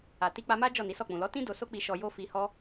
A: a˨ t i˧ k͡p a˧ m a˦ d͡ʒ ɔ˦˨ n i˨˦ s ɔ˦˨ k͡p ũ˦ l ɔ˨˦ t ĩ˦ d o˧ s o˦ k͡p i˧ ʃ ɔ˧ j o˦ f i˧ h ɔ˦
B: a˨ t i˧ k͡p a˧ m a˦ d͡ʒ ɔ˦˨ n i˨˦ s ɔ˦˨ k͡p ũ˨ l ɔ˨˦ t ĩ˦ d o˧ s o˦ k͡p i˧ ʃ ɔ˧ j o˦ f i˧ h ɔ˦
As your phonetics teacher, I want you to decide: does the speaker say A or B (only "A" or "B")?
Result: B